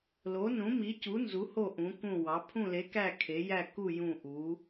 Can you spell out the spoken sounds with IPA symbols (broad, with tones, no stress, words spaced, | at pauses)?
lo˨˥nũ˨˥mi˨˥cu˨˥ nzu˨˥ho˦˨ ʔũ˨˥kũ˦˨wɑ˨˥ pʰũ˦˨le˨˥kæ˦˨ kʰe˨˥ jæ˦˨ku˦˨ jũ˦˨ ʔu˨˥